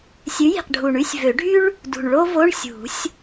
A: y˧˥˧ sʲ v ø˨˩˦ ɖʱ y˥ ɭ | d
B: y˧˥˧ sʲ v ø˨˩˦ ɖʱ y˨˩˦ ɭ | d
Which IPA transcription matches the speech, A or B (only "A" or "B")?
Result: A